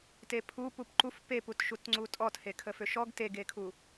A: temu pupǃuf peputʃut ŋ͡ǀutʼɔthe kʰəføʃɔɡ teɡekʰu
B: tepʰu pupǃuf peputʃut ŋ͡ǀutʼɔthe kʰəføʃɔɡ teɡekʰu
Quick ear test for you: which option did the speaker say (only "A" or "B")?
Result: B